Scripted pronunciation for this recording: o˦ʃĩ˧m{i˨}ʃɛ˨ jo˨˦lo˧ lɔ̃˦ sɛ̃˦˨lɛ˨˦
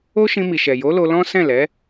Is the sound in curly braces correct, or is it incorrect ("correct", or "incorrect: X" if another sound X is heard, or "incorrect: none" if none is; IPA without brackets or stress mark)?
correct